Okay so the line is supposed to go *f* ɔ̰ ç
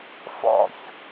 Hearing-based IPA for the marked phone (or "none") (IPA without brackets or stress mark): f